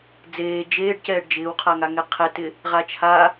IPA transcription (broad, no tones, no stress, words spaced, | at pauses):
d͡zeː d͡ʒeːɖ cɛːɖd͡ʒɪːwqʰaŋa ŋɛqʰɛtɪ | ʁat͡ʃʰa